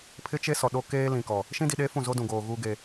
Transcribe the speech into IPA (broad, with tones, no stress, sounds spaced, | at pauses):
pʰ ɪ˦ t͡ʃ e˦ s ɔ˨ ɗ o˦ k eː˦ l ĩ˨ k ɔ˨ | ʃ ĩ˦ d i˨ ɗ eː˦ f ũ˦˨ z o˦ d ũ˨ ɡ oː˨ ɣ uː˦ ɡ e˨